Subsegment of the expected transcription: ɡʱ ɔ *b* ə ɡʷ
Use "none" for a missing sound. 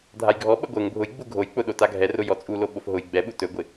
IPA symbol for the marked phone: ɓ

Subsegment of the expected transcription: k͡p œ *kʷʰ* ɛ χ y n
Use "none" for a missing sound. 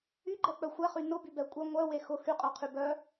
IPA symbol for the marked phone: xʷ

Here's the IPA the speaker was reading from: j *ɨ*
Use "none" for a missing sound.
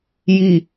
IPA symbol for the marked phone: i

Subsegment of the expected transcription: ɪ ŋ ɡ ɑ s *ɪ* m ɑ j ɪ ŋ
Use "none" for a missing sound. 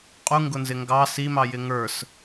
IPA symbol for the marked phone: i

